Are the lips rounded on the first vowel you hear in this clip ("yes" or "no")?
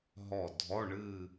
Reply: yes